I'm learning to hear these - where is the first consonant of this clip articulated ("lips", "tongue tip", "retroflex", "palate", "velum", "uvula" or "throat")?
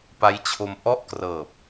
lips